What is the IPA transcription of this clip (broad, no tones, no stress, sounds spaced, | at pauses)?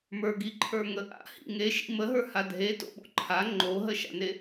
m ə˞ ɡ i ǃʰ ə˞ ŋ ə ʔ a̰ h ḭ ŋ e ʃ ḭ m ə ɦ ə˞ h a dʱ e t o̰ ɓ o̰ ǃʰ a ŋ͡ǃ o ɦ ə ʃ a̰ n e